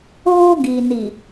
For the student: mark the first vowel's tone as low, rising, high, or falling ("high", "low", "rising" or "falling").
high